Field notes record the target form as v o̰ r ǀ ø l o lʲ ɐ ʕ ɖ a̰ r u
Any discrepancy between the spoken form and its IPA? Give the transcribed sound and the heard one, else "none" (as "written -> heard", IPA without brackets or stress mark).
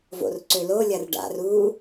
ʕ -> r